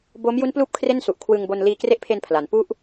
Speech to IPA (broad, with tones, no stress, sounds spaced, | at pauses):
b oː˦˥ m j u˦˥ n p l uː˦˥ p̚ kʰ r e˥˩ n s u˨˩ ʔ kʰ w ɯ˧ ŋ b o˧ n l iː˧ k r e˦˥ ʔ pʰ e˧ n pʰ l a˩˦ n p u˥˩ ʔ